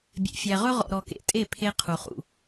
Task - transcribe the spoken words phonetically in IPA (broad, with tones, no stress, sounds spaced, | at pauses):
bʲ ḛ˨ fʲ æ˨ ʁ ɵ˦ ʁ ɔ̰˨ ɾ ɔ˨ k ḛ˨ tʼ e˦˨ pʰ e˦ qʰ u˨ χ ṵ˨